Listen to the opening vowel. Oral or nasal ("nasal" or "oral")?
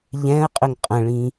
nasal